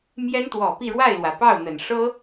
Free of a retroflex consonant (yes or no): no